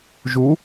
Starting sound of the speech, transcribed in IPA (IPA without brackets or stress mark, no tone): ʒ